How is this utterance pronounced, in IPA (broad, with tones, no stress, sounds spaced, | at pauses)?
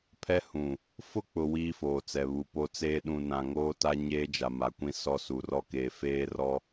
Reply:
pʰ ɛ˦ h ũ˨ | f ʊ˦ k͡p ʊ˨ w iː˦ f oː˨ t͡s ɛ˨ β u˨ p o˦ t͡s eː˦ ɗ ũ˨ n ã˨ ŋ oː˦ t a˦ ɲ eː˦ d͡ʒ a˨ m a˨ kʷ ĩ˦ s ɔ˦ s u˨ r ɔ˦ k eː˨ f eː˦ r ɔ˦